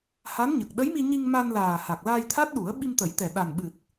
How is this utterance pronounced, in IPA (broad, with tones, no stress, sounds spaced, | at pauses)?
h a˧˥ n ɲ ə˨˩ k̚ ɗ ə˧˥ j m i˧ ɲ i˧ ŋ m a˧ n l aː˨˩ h a˨˩ k̚ l aː˧ j t̪ʰ a˦˥ t̚ ɗ u˨˩˦ ə̯ ɓ i˧ m t̪ ə˨˩˦ j t̪ ɛ˨˩ ɗ a˨˩ n ɓ ɨ˨˩ t̚